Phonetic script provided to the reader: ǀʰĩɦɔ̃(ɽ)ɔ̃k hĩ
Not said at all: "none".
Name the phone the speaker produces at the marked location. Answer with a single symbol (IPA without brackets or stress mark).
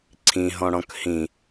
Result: ɽ